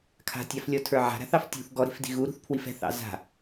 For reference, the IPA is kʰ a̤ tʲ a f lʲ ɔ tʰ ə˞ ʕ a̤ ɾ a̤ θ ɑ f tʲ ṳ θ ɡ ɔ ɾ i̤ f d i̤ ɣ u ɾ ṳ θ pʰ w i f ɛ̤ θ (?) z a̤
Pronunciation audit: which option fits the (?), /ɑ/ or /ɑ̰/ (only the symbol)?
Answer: ɑ̰